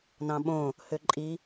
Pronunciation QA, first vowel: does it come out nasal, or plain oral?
nasal